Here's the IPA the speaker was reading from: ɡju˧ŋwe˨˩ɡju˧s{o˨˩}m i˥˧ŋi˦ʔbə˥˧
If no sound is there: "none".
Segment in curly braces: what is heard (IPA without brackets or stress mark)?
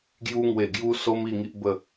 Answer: o˧